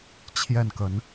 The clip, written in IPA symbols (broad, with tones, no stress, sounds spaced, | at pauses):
t͡ɕʰ j ɛ˥˨ n k ə˨˦ n